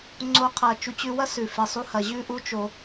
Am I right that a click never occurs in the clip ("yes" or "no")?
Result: no